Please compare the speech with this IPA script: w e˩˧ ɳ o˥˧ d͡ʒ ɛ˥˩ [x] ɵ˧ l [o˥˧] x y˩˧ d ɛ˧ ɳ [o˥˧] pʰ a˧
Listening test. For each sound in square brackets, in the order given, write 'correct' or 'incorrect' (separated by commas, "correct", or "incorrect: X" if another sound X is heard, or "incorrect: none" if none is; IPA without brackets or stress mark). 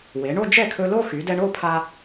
incorrect: kʰ, correct, correct